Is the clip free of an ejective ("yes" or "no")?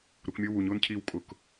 no